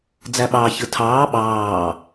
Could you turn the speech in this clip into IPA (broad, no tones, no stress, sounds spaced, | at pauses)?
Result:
d͡z æ ɓ ɑː ç ɯ tʰ ɑː ɓ ɑː